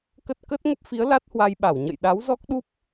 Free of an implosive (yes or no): no